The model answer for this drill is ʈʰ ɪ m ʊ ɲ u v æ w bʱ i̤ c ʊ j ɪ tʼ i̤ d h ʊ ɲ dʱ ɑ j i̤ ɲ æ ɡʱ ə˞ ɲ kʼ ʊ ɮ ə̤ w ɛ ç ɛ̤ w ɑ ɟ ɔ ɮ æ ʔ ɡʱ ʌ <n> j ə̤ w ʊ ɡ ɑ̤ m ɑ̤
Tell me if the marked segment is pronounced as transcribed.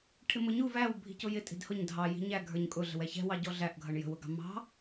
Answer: no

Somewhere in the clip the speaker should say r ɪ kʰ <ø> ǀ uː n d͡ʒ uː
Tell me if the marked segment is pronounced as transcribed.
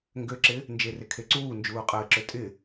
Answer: no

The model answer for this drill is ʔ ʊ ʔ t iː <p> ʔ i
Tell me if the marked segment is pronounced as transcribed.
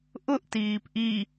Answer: yes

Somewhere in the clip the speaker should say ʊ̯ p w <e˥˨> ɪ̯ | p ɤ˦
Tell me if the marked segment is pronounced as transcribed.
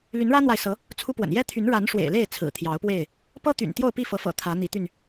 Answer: yes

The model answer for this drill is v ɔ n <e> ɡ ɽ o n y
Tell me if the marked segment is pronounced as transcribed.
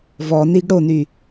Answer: no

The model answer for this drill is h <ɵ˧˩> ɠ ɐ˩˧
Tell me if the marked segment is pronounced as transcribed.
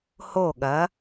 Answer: no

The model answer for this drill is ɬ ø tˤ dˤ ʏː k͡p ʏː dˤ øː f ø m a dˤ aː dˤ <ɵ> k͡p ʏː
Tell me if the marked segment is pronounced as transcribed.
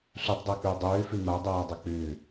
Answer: yes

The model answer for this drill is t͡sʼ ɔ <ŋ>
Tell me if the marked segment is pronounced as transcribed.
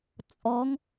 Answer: yes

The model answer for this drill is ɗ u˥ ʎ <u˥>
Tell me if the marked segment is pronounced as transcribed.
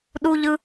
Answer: no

